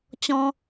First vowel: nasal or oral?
nasal